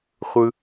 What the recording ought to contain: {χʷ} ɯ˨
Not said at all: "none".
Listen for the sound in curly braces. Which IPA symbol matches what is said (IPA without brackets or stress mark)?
χʷ